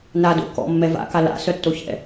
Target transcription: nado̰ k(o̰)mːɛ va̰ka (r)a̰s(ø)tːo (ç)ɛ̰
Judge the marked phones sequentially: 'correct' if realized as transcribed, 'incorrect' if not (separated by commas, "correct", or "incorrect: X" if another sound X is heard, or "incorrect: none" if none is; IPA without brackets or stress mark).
incorrect: ɔ̰, incorrect: l, incorrect: œ, correct